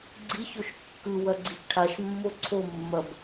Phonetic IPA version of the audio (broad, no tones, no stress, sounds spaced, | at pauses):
ɡ͡ǀ i ç o ʃ kː ɯ w ɐ ɡ͡ǀ i ç ʈʰ a ʃ mː o ǀʰ o mː ɐ b